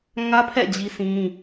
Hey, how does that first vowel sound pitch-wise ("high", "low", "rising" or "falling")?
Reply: high